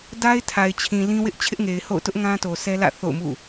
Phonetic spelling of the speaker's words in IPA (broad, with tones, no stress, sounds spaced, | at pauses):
d a˦ ɪ̯ tʰ a˨ ɪ̯ t͡ɕʰ ĩ˨ l ĩ˦ w ɪ˦ ʔ t͡ɕʰ ɪ˦ ʔ ŋ e˨ ɪ̯ h o̰˦˨ ʊ̯ t ʊ˦ ʔ ŋ ã˦ t o˨ sʰ ɛ˦ l ä̰˦˨ θ o̰˦˨ ʊ̯ m ṵ˦˨